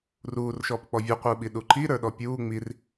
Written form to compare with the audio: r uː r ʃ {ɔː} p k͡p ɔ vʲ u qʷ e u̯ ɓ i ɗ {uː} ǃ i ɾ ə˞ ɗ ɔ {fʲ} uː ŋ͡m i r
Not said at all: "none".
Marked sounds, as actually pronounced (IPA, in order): ɔː, u, pʲ

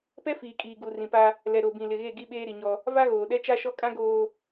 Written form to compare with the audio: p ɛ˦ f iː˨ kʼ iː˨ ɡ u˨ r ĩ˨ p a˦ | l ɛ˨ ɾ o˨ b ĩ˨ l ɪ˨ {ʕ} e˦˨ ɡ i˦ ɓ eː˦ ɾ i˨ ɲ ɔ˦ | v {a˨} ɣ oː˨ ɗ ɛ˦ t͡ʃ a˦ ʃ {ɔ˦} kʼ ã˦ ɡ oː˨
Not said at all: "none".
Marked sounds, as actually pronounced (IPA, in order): ɣ, a˦, ɔ˦

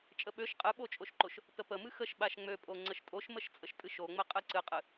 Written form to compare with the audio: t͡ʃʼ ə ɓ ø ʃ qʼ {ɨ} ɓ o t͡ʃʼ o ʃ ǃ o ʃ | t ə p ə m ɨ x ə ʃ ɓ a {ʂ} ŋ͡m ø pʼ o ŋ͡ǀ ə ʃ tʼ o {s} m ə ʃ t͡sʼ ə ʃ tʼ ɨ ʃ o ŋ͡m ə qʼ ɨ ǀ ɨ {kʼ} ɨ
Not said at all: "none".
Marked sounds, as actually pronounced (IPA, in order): ɨ, ʃ, ʃ, qʼ

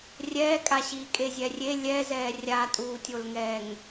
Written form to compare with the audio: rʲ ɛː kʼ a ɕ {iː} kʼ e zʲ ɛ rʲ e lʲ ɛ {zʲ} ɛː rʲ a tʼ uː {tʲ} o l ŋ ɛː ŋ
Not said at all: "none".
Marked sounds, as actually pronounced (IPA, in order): iː, z, tʲ

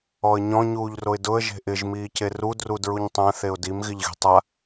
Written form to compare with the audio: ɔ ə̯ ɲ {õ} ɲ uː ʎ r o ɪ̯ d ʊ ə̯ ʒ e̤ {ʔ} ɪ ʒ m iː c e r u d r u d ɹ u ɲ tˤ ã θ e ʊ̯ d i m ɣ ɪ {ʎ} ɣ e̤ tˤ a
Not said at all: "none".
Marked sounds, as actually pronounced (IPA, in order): ɔ̃, ʔ, ʎ

